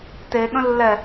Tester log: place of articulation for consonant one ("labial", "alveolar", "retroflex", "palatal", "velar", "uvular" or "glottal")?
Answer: alveolar